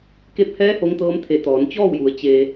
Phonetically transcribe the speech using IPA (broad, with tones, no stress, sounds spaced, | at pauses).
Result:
k e˧˥ p̚ h ɛː˧˥ h o˧˥ ŋ t̪ ɤː˧˥ m t̪ʰ e˧˩ t̪ ɔː˩˧ n t͡ɕ ɔː˥˨ w j u˩˧ ə̯ t͡ɕ e˩